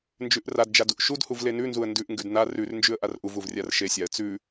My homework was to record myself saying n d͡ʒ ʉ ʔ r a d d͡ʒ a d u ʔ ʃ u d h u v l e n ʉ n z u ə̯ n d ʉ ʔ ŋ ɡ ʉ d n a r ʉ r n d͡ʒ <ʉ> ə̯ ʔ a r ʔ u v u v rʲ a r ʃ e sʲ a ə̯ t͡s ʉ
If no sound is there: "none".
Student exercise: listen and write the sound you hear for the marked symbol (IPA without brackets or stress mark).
ʉ